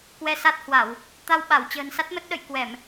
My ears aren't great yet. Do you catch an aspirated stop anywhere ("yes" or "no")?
no